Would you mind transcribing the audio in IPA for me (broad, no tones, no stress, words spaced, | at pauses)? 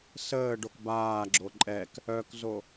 səː ɖokbaːɡ͡ǁo ǃʼɛk | œkzo